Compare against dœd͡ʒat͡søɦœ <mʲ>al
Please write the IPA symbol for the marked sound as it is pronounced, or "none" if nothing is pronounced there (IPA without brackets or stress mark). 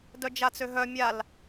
mʲ